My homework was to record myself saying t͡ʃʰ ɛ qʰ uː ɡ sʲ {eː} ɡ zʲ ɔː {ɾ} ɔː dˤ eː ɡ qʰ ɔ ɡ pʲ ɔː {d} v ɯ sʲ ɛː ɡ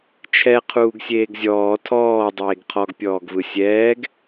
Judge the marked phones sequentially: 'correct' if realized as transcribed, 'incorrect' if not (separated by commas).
correct, incorrect, incorrect